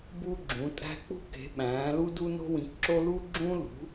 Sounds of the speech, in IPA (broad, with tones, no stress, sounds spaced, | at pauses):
b u˥ ɡ͡ǁ ũ˩˥ tʼ æ̤˥ k͡p ṳ˥ k e̤˩˥ ɓ æ̃ː˩˥ l u˥ d u˥ n o̤˥ w ĩ˩˥ k ǁ o˥ l u˥ ɡ͡ǁ ũː˥ l ṳ˩˥